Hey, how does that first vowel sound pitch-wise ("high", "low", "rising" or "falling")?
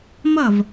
falling